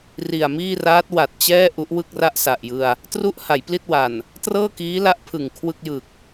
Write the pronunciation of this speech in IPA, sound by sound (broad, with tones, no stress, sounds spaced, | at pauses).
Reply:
r i˨˩ a̯ m iː˥˩ r aː˦˥ t̚ w a˨˩ t̚ t͡ɕ ɛː˥˩ ʔ u˦˥ ʔ w ɯ˥˩ k̚ r a˥˩ ʔ s a˨˩ ʔ j ɯ˧ a̯ | t r u˦˥ ʔ h a˩˦ j p l i˥˩ t̚ w a˨˩ n | t r ɤː˥˩ k iː˦˥ l a˦˥ ʔ pʰ ɯ˨˩ ŋ kʰ w ɯ˥˩ k̚ j ɯ˨˩ k̚